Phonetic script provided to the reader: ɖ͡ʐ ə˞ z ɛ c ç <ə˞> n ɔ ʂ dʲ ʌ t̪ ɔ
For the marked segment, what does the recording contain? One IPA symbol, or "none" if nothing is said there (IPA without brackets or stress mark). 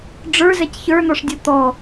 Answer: ə˞